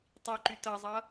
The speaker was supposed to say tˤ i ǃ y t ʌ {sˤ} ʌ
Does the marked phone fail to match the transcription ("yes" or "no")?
yes